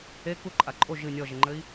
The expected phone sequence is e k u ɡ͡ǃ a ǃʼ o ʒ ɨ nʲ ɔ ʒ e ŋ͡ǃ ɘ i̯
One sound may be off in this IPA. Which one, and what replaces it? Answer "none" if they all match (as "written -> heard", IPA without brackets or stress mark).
ɡ͡ǃ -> ǃʼ